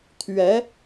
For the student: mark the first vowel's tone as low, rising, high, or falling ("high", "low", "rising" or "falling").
rising